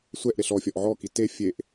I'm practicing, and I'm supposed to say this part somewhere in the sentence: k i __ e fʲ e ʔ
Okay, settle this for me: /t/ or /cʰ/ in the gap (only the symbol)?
t